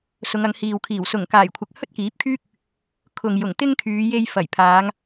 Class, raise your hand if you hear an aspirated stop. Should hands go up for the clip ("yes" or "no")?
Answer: yes